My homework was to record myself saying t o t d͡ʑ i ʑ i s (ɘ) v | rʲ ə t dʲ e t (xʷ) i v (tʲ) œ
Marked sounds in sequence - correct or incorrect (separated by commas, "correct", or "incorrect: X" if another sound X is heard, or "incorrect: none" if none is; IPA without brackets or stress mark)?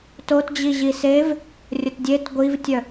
incorrect: e, incorrect: ɡʷ, correct